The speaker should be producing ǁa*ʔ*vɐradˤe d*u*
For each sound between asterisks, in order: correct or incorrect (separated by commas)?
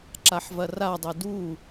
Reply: incorrect, correct